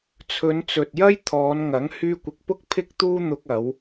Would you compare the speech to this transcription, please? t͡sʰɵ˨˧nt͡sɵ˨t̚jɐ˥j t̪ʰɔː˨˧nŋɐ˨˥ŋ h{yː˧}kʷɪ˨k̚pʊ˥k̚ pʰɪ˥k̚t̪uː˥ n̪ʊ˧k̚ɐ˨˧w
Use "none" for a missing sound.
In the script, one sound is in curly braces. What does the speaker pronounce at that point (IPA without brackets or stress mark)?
yː˧